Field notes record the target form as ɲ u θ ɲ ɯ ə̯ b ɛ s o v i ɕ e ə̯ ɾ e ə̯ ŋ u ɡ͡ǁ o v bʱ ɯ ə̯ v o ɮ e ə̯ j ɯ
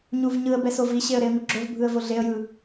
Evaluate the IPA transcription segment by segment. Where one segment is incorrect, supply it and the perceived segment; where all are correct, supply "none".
θ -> v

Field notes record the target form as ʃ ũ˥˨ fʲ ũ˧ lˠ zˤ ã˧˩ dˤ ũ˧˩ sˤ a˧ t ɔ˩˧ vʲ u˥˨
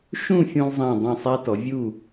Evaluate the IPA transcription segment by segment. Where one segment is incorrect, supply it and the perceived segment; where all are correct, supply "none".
none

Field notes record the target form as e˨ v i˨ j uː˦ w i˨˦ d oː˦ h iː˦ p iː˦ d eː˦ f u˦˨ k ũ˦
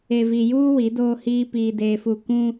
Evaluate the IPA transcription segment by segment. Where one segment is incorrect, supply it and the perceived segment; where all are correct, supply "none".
none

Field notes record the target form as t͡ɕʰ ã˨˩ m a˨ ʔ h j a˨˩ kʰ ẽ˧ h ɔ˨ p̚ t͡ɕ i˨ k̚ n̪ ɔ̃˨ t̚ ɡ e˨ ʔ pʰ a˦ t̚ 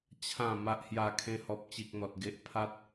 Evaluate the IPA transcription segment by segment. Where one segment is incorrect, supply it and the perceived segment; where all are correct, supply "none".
ɔ̃˨ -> ɔ˨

